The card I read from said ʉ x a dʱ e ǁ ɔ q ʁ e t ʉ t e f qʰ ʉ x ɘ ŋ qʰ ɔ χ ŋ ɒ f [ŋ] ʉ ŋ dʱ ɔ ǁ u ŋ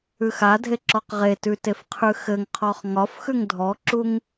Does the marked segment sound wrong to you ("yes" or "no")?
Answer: yes